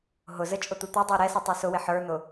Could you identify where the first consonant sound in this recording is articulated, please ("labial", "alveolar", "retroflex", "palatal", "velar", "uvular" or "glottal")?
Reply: glottal